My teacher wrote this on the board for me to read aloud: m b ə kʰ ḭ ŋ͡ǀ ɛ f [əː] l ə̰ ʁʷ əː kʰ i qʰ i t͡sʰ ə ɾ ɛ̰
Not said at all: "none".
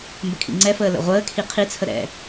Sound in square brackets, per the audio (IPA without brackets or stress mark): əː